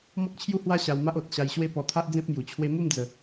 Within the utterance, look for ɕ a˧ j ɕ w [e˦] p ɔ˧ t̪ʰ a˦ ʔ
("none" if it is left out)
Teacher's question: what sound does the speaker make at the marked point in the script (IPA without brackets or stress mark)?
e˦